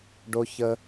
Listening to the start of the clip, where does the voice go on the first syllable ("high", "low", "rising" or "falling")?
high